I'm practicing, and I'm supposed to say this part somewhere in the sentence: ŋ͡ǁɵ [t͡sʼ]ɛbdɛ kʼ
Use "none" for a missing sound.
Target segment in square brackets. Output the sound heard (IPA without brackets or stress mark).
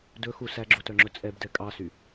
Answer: t͡sʼ